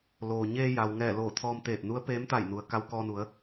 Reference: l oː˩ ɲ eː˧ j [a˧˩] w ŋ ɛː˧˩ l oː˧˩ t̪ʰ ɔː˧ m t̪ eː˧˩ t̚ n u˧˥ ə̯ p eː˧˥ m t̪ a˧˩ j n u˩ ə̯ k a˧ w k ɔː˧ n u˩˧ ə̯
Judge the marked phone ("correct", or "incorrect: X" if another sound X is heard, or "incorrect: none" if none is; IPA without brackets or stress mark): incorrect: a˩